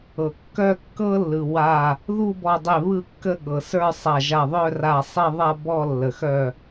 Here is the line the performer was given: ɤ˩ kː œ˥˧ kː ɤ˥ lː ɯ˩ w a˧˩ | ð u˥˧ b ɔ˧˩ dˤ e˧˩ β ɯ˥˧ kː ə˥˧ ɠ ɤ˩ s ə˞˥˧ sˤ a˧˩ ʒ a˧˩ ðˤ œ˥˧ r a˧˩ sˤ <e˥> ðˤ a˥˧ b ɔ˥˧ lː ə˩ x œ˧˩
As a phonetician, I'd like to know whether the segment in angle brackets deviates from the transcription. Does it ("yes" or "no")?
yes